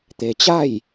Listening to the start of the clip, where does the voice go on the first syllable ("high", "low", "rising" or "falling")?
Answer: low